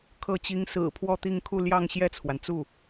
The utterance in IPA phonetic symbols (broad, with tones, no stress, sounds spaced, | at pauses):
kʰ ɤ˥˩ t͡ɕ i˥ ŋ s ɹ̩˨˩ pʰ w ɔ˥˧ t̪ i˥˧ ŋ kʰ u˥˧ l j ɑ˥˧ ŋ ɕ j ɛ˥˩ t͡sʰ w a˩ n t͡s u˥˩